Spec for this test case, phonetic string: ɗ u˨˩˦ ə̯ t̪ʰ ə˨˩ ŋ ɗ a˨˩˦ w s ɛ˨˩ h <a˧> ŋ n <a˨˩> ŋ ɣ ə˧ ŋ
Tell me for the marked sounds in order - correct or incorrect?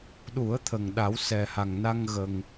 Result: incorrect: a˨˩, incorrect: a˧

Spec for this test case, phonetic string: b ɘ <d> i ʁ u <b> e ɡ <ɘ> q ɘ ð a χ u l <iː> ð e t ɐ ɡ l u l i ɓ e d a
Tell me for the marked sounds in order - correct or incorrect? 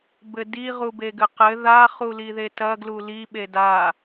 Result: correct, correct, correct, incorrect: i

